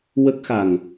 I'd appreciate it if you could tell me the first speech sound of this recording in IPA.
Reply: w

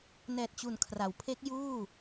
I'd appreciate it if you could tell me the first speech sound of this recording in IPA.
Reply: n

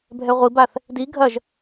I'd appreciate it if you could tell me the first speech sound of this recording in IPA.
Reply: bʱ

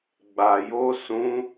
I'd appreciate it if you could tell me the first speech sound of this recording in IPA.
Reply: ɡ͡b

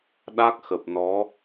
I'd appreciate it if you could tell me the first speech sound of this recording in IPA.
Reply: ɗ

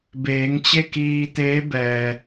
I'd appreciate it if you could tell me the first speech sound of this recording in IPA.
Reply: b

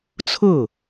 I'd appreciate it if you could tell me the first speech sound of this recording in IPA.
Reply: t͡sʰ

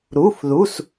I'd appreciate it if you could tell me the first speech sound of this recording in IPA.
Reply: ɾ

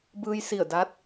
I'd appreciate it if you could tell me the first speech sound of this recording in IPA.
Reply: b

